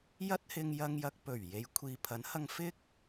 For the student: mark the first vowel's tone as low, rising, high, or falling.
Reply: high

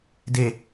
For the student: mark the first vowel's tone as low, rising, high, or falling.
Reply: low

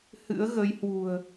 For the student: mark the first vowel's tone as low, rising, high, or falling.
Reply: rising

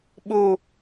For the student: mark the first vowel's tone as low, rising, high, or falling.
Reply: high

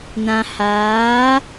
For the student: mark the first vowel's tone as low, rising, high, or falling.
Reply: low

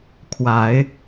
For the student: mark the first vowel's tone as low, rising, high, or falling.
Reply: rising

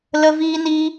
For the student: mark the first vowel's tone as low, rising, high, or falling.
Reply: high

